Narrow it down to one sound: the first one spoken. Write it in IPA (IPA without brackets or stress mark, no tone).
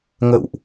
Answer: ŋ